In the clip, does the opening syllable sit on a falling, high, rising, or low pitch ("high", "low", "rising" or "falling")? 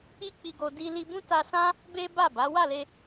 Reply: high